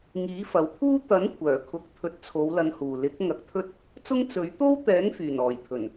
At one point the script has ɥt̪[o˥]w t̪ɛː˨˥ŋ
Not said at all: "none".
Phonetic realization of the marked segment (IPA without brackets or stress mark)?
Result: o˥